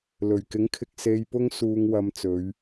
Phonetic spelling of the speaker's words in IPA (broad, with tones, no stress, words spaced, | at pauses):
lɵ˨˩ɥkɪ˨˥ŋkʰɪ˨k̚ se˨jpʊ˧ŋ suː˧ŋwɐ˧mt͡sɵ˨˧ɥ